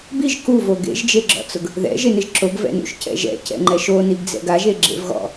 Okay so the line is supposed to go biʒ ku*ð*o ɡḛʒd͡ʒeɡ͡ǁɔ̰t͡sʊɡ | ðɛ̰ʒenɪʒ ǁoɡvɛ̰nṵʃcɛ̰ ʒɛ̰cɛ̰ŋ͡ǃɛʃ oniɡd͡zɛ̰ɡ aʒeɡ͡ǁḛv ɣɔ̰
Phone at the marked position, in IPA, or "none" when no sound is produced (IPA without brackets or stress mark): v